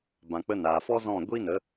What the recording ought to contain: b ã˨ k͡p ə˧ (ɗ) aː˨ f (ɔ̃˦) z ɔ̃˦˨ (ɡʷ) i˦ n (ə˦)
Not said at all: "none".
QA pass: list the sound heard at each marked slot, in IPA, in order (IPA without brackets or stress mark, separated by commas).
n, ɔ˦, ɡʷ, ə˨˦